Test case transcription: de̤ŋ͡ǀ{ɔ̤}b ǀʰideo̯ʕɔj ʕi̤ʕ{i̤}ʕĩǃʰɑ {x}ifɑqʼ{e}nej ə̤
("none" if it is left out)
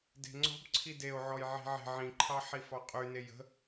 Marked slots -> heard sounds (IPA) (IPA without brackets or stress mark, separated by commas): ɔ̤, e̤, ħ, y